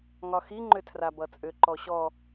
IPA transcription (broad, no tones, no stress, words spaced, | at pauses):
ŋɒxi ŋ͡ǃʏtʰrabʌt͡sʼʏ ǃɔɕɔ